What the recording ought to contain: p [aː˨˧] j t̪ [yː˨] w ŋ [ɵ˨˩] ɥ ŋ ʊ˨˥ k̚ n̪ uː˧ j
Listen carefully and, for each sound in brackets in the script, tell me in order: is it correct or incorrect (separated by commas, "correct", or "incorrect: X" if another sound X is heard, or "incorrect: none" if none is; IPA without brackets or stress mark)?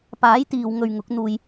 incorrect: aː˨˥, incorrect: iː˨, incorrect: ɵ˨